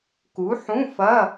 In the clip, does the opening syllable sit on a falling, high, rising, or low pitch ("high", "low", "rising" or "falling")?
rising